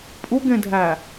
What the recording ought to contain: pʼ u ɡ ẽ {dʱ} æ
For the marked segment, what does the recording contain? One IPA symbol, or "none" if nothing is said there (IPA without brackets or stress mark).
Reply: dʱ